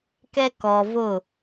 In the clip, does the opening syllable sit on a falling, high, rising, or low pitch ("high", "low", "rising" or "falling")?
high